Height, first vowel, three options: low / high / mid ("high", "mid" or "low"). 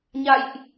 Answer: low